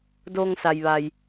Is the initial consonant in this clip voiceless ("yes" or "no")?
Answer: no